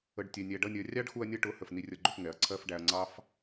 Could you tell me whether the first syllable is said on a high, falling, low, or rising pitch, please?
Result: low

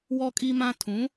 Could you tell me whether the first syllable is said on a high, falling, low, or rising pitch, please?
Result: high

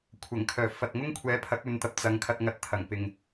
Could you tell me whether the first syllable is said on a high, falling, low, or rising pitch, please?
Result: low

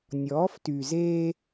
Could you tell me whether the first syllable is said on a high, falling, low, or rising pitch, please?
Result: rising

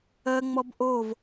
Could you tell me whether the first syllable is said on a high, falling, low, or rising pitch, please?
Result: high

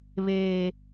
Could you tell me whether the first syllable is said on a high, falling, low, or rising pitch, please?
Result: low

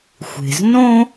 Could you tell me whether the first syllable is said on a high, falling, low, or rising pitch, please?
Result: low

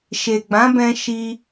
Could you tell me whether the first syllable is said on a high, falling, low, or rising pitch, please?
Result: low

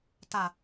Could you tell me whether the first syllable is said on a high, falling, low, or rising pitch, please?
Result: low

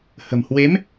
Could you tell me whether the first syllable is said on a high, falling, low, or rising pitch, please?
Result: low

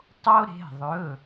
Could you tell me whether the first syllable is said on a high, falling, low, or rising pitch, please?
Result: high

